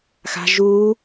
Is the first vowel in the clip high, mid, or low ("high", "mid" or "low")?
low